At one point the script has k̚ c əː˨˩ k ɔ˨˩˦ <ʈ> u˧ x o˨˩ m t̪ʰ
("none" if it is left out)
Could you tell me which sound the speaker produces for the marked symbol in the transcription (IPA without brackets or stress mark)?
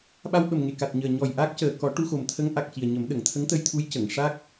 ʈ